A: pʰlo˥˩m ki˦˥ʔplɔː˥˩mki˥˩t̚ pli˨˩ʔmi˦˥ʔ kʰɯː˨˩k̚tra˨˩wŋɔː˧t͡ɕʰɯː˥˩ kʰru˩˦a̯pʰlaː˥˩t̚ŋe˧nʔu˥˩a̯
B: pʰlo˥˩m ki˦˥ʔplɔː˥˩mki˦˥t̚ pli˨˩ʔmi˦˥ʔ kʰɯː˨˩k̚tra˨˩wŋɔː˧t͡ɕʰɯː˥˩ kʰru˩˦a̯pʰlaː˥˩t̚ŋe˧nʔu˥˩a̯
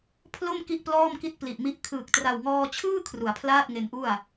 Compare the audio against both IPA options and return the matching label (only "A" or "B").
A